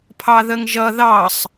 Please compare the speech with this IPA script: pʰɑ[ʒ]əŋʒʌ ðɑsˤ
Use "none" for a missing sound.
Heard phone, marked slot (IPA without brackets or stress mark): ð